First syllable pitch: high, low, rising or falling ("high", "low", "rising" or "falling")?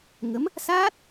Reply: rising